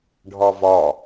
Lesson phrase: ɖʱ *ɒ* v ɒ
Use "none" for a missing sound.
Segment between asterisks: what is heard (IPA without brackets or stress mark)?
ɒ